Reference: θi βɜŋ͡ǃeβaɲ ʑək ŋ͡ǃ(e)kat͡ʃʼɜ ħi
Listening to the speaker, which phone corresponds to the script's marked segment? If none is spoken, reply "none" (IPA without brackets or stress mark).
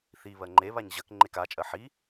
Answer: e